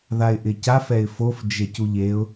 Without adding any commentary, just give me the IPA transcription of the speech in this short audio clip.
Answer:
ðaɪ̯ʔɪcaf ɛɪ̯fof d͡ʒecuʎeʊ̯

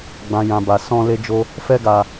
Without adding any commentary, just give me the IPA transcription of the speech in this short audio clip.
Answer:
ɡ͡bã˨jã˨ba˨ sɔ̃˧ le˧d͡ʒo˧ | fɛ˧ɡa˨

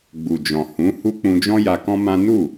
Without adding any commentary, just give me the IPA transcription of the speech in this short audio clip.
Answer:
ɡ͡bu˨d͡ʒɔ̃˨ hũ˨˦hu˦ k͡pũ˧d͡ʒɔ̃˦ja˧ kɔ̃˦mã˦ nu˦˨

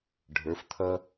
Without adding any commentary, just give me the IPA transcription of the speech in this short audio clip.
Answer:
ɖʱə˞˩˧ft̪ʰʌ˧

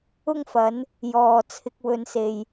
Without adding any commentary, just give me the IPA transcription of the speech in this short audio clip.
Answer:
ʊ˧ŋfɐ˨˧n | jɔː˨ t͡sʰɪ˨k̚wɵ˨nse˨j

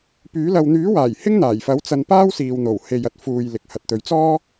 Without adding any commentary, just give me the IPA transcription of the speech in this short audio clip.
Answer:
pyː˨˥ lɐ˨wn̪yː˨˥waː˨˩j hɪ˥ŋn̪aː˨˩jfɐ˨˥w t͡sɐ˧npaː˥wsiː˨wn̪o˨˩w he˨jɐ˨t̚fuː˨j lɪ˨k̚hɐ˨t̚t̪ɵ˨˧ɥt͡sɔː˥

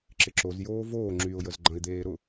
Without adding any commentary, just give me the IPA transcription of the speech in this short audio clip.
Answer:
ǁɪǁozjoː voː ŋ͡ǁyʊ̯jəz ɡ͡ǃɐ̃ɪ̯d̪eː ɾʊ

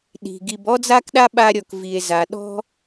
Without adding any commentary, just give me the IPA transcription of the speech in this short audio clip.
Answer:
ɗi̤˩ɡi˨b ɔ˥d͡za˥kɗa˥ ɓa˥ɾʲɔ˨k vi˩e̯za˩ɗɔ̤˥

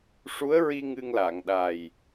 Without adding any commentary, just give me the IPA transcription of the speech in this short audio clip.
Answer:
ʂu˧˥ə̯ɹi˧ ŋɨ˧ŋla˨˩˨ŋ ɗa˨˩j

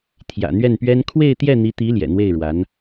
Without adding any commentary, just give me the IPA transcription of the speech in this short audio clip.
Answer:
t̪ʰjä̰˨˩n̪ɥɛ˥˩npɥɛ˥n kʰwe˥˧ɪ̯t̪jɛ˥˩n̪i˧˥t̪i˧˥ ljɛ̰˨˩n̪we˥˩ɪ̯ɻwa˧˥n

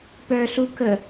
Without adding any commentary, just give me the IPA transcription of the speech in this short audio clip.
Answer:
pœɬu kə

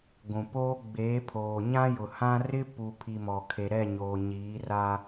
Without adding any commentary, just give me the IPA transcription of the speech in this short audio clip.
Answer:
ɡʷũ˨ poː˦ ɡ͡beː˨˦pʰoː˨ɲã˦jʊ˨ hã˦ rɪ˦pu˨pʰi˨ mɔ˨kʰe˨ɾɛ˦˨ ɲoː˨ɲiː˨˦ra˦

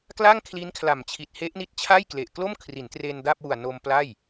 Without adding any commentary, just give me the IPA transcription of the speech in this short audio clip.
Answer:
kla˥˩ŋkʰli˦˥nkʰla˨˩mt͡ɕʰi˨˩t̚ he˦˥ʔni˦˥t̚t͡ɕʰa˥˩jkle˨˩ʔ klo˥˩mkʰri˩˦ntre˧n da˥˩p̚ wu˨˩a̯no˧m pla˥˩j

